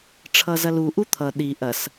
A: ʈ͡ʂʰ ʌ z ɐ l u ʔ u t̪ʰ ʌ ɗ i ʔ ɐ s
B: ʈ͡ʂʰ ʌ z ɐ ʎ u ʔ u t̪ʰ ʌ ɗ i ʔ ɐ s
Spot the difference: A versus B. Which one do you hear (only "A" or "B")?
A